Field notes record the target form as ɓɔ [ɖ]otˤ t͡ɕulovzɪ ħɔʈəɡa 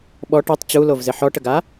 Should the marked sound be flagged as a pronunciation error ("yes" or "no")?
yes